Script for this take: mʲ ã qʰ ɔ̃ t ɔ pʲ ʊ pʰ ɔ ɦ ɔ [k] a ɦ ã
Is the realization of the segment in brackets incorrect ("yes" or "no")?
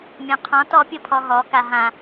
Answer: no